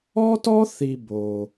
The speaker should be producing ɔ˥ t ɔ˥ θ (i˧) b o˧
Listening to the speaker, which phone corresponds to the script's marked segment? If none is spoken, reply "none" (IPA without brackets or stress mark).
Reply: i˧